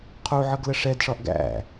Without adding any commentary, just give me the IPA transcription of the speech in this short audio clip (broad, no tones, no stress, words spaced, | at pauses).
qʰuʕʌɡlə ʂɛdʂɒʔ ɡæ̰